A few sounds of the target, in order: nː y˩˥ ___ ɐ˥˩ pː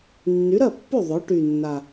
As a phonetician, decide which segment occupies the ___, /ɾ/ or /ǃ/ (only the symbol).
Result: ɾ